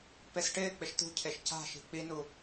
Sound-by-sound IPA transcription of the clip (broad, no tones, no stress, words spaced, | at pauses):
pesʈɪːk͡pɪʃ t̪ṳcʰeʃ ca̤ʃi̤ k͡pinu